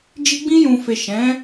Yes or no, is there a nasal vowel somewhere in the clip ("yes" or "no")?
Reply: yes